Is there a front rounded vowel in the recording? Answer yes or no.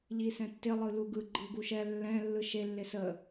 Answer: no